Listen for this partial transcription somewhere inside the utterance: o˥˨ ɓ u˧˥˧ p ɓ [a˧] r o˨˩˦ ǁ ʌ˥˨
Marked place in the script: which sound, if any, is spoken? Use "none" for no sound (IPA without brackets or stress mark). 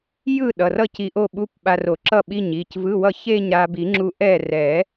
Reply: a˧